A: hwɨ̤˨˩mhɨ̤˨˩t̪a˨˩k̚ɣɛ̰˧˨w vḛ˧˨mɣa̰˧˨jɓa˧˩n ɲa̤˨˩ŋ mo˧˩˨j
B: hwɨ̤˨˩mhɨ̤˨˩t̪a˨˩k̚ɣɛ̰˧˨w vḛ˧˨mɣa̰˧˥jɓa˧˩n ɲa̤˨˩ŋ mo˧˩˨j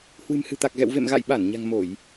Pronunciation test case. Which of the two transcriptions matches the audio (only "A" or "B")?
A